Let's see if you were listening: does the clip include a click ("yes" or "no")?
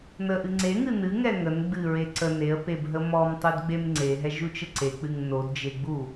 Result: yes